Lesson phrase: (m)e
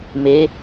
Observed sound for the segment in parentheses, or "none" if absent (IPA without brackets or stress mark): m